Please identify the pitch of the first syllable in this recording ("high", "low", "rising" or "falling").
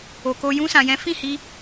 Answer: low